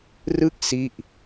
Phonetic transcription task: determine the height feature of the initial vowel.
high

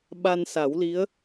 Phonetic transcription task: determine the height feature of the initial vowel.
low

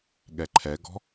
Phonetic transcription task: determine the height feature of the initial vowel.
mid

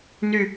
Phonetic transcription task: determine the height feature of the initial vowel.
high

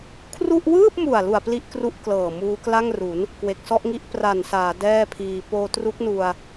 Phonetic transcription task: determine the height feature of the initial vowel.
high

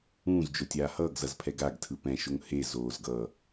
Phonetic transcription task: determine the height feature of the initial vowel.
high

